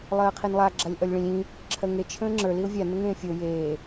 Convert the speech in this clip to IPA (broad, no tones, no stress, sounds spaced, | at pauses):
lˠ ɜː qʰ i n lˠ a ɡ͡ǁ a lʲ ʔ ʌ lʲ ɭ ĩ lʲ ĩ | ǁʰ ɜ ŋ e t͡ʃʰ ə̃ː ŋ͡ǁ ə˞ l i ʊ̯ vʲ a n ə ŋ ẽː fʲ o j eː